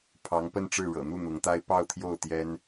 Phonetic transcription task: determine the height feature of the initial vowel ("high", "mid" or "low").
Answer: low